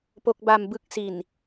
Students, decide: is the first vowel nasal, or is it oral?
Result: oral